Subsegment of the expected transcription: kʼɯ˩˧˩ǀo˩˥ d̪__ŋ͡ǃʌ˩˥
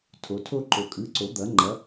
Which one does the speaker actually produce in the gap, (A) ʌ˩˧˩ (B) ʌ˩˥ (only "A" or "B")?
B